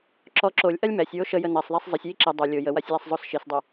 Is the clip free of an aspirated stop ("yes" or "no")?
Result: yes